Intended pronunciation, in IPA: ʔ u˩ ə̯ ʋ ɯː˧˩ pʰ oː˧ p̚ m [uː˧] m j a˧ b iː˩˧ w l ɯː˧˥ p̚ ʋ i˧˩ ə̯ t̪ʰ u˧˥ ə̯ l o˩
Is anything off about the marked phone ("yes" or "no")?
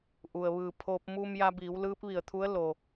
no